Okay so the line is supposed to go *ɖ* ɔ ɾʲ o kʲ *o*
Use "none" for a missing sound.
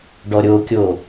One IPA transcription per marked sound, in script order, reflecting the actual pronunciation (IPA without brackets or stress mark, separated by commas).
ɖ, o